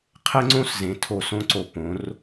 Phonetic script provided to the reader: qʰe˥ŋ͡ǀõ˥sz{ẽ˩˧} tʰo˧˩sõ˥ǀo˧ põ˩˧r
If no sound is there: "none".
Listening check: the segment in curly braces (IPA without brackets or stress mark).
ẽ˩˧